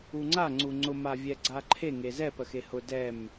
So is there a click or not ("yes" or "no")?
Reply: yes